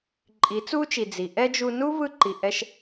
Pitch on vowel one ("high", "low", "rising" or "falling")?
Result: rising